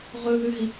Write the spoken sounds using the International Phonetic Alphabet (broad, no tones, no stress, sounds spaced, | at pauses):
ʁ ɵ ð ʉ ɦ i